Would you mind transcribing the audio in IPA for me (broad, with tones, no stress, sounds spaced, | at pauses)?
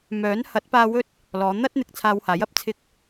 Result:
m œː˨˥ n h ɐ˨˥ t̚ p aː˧ w ɵ˥ t̚ | l ɔː˨˧ n̪ ɐ˥ t̚ n̪ ɪ˨ k̚ t͡sʰ aː˧ w h aː˨˥ j ɐ˨˥ p̚ t͡sʰ ɪ˧ k̚